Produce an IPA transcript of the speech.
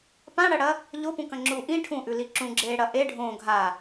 p ã ɽ ɐ ɽ ɐ | ʎ o p ũ k ɐ̃ ŋ͡ǁ u ʔ ĩ ʈʰ ũ ʔ ʉ l i ǁ ũ ɡ͡ǁ eː ɽ ɐ ʔ e ɖʱ õ ɡʱ a

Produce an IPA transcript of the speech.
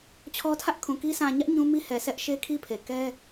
t͡ɕʰ ɔ˦ tʰ ä˦ ʔ kʰ ũ˨ k i˦ sʰ ã˨ ɲ ä˦ ʔ ɲ ũ˦ m i˦ h ɛ˨ s ɛ˦ ʔ ʃ e˦ kʰ i˦ pʰ e˨ k ɛ˦

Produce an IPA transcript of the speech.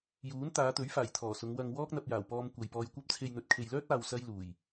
j uː˨˥ n t̪ aː˨˧ t̪ ɵ˨˥ ɥ f aː˨˩ j t̪ʰ ɔː˨˩ s ʊ˨˧ ŋ w ɐ˧ ŋ w ɔː˥ k̚ n̪ ɐ˧ p̚ j aː˨˩ w p ɔː˧ m kʷ ɐ˨ j p ɔː˧ j kʷ ɐ˥ p̚ t͡sʰ e˧ j n̪ ɵ˨ t̚ kʰ e˨ j l œː˥ t̚ aː˨ w s ɐ˥ j l uː˨˩ j

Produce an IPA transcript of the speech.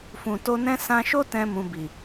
f ũ˨ t o˧ n ɛ̃˦ s ã˧ ʃ o˦ t ɛ̃˦ m ũ˧ b i˨

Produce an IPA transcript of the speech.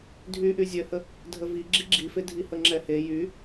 dʱ y ʔ y zʲ œ h ə | dʱ ə v i ɡ͡ǁ i ɡ͡ǁ i f e dʱ i h ə ŋ͡ǁ ɛ h e j y

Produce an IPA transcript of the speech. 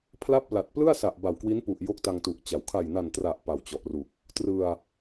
pʰ l a˥˩ p̚ l a˨˩ t̚ p l ɯ˥˩ a̯ s a˨˩ ʔ b a˨˩ w k w i˦˥ n p u˨˩ ʔ j o˥˩ k̚ t a˧ ŋ t u˨˩ ʔ t͡ɕ a˩˦ w kʰ a˨˩ j n a˨˩ n t r a˨˩ ʔ p a˨˩ w t͡ɕ ɔ˨˩ ʔ r u˨˩ k̚ | t r ɯ˧ a̯

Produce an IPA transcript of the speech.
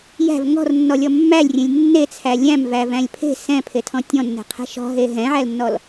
j æ̤ v ŋ ɔ̤ r nː ɔ lʲ ɔ mː æ lʲ rʲ ẽ lʲ nː e t͡sʰ æ lʲ æ̃ m v æ v æ̃ lʲ pʰ e̤ s ɛ̃ pʰ e tʰ ɔ̃ tʲ ɔ̃ nː ɛ̤ qʰ ɛ̤ ʃ ɔ̤ ɦ e ɦ ɛ̃ ʕ æ l nː ɔ l

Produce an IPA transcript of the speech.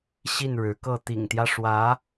ɕ i˥˩ n ɻ ɻ̩˧˥ k ɤ˥˩ t̪ ḭ˨˩ ŋ t̪ j ä˦ ʂ w ä˧˥

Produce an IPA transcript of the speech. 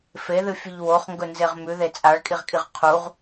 f e ð ɨ fʲ ɨ ʎ w o χ ŋ ɡ ɵ n z e ʁ m ʉ ð e t͡sʼ a ɭ kʼ i ʁ kʼ i ʁ qʰ u ʁ

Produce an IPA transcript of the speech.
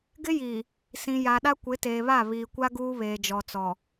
ɡ ɪ˦ j iː˨ | s ĩ˨ j a˨ ɗ a˦ kʷ ɪ˨˦ t eː˨ β a˦˨ β iː˨ kʷ a˦ ɡ uː˦ β eː˨ d͡ʒ ɔ˨ t͡s ɔ˨

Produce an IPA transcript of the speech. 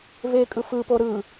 v e kʼ ɯ f ɯ p o ɾ ɯ

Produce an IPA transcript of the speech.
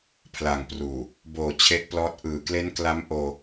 pʰ l a˨˩ ŋ p r uː˨˩ | b oː˨˩ t͡ɕʰ e˦˥ ʔ p l ɔː˦˥ t̚ ʔ ɯː˨˩ k l e˦˥ n k l a˦˥ m ʔ oː˧

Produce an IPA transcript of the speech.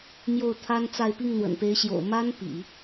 m j o˥˩ ʊ̯ t̪ʰ a˥ n t͡s a˥˧ ɪ̯ p i˥˩ ŋ n̪ w ə̰˨˩ n p e˧˥ ɪ̯ ɕ j o̰˨˩ ʊ̯ m a˥ n p ḭ˨˩˦

